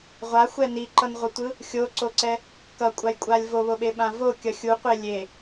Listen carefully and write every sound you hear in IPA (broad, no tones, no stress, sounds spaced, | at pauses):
ʁʷ a xʷ ɛ n i ǃ ʌ n ʁʷ ʌ tʷ ɯ | xʲ o ǀ o ǀ ɛ | k ʌ kʷʼ a j kʷʼ a lʲ v o β o ɓ e ɓ ã v o kʲ ʌ xʲ u qʷ e lʲ e